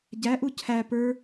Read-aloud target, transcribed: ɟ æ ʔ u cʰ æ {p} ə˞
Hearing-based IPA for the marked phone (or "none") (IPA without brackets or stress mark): p